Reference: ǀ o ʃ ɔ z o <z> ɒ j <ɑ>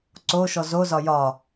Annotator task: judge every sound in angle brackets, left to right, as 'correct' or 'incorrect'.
correct, incorrect

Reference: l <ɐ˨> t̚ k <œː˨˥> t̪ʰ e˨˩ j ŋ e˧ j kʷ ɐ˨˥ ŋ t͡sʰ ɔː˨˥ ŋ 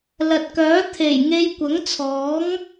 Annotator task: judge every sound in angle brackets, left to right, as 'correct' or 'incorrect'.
correct, correct

